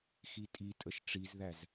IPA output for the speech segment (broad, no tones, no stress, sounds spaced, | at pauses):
x i tʼ i tʼ ə ʃ ʈ͡ʂ i z ð æ z